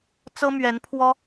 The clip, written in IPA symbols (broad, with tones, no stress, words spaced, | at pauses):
t͡sɤ˥mɥɛ˧˥n pʰwɔ˥